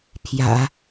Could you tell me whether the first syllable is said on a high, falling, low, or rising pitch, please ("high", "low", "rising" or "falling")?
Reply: low